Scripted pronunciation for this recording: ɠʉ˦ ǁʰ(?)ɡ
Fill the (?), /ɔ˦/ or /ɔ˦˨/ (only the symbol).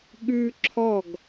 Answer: ɔ˦˨